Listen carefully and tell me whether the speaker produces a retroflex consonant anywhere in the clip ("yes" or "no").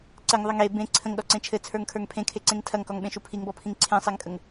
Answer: no